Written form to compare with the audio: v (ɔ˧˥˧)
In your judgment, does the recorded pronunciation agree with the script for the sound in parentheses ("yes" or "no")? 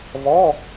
yes